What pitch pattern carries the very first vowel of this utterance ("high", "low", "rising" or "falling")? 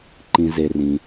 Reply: low